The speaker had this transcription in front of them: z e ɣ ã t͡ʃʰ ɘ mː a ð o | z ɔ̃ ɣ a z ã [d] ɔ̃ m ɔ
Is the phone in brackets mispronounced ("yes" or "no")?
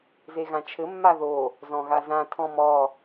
yes